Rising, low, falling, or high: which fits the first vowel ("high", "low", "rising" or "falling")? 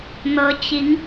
rising